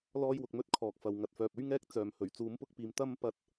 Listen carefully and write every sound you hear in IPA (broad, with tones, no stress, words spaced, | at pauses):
lɔː˥jwʊ˧k̚mɵ˥t̚kʰɔː˨k̚ fɐ˨w ŋɐ˨t̚fœː˨p̚ɵ˥ɥ ŋɛː˥k̚t͡sœː˨mhɵ˨˩ɥ t͡suː˨˧mpʊ˥k̚piː˨m t̪ɐ˥m pɐ˥t̚